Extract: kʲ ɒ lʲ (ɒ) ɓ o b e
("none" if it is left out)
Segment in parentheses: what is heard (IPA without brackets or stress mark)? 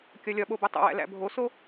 ɒ